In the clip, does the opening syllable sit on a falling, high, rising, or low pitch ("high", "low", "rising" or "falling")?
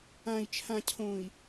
low